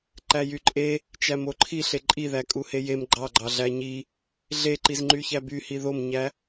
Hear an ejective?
yes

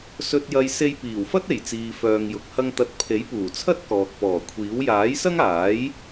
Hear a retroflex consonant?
no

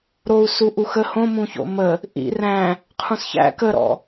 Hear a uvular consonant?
yes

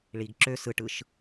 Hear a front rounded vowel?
yes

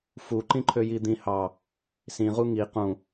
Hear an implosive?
no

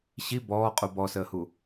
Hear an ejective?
yes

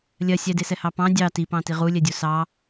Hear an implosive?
no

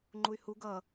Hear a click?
yes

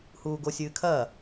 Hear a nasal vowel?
no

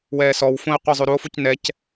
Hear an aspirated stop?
no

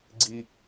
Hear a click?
yes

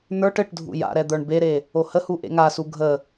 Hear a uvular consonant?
no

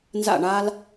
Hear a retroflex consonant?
yes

